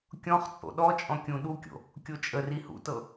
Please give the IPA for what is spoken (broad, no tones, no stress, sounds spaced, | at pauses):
kʲ ɔ̃ χ t͡sʼ o̰ ɗ ɔ t͡ʃʼ ɔ̃ kʲ ũ ɗ u kʲ o̰ | kʲ o t͡ʃʼ ə r i h ṵ t ɤ